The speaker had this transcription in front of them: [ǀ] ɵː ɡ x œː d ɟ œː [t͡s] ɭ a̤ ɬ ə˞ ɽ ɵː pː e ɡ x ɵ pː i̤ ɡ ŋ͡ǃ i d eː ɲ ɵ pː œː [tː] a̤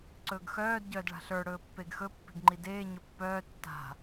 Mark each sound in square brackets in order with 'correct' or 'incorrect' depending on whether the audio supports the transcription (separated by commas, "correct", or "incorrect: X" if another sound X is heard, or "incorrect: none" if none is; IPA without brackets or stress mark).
correct, incorrect: d, correct